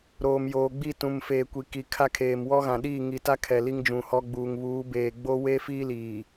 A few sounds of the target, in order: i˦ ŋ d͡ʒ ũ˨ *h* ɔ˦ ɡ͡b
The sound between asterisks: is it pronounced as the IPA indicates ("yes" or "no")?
yes